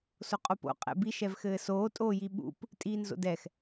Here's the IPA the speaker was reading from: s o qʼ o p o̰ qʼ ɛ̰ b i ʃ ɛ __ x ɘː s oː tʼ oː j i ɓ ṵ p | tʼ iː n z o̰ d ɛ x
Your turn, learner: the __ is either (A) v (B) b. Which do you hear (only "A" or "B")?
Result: A